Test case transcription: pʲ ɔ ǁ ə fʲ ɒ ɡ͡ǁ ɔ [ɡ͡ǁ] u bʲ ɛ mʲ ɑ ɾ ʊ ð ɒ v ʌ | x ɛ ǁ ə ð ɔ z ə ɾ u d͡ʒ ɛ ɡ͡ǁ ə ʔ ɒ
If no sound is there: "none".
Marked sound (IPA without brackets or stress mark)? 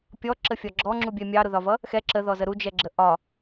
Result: ŋ͡ǁ